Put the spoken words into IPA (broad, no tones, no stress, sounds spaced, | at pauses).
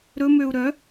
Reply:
ɾ ɵ m ø u̯ ɾ œ